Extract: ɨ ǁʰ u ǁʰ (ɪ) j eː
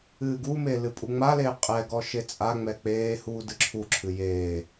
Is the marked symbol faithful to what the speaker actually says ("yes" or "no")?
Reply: no